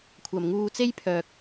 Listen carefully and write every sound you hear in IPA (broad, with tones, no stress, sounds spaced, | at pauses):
kʷʰ ɐ˨ m ŋ uː˧ t͡s e˥ j pʰ œː˧ k̚